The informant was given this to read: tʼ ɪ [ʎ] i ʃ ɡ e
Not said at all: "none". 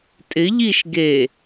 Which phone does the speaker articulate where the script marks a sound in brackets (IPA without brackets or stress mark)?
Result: ʎ